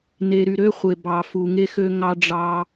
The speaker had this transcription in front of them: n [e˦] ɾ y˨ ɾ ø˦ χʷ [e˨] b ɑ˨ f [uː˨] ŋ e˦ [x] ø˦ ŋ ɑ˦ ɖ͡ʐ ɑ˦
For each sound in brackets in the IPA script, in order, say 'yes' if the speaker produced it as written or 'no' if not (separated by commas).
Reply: no, yes, no, yes